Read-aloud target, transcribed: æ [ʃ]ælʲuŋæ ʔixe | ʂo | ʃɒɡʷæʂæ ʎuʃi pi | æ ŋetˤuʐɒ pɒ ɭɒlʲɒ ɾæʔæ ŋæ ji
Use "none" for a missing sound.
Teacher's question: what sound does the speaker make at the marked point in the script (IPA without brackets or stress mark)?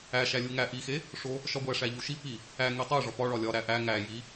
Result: ʃ